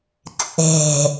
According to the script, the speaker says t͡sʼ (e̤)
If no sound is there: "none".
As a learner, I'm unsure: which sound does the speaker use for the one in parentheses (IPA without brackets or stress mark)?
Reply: e̤